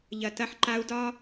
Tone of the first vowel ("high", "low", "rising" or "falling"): low